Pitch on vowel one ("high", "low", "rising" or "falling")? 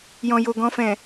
low